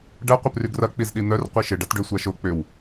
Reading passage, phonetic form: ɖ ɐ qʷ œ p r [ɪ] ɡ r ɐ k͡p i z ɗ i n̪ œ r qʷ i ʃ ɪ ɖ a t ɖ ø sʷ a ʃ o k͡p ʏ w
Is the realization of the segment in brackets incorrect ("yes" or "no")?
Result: yes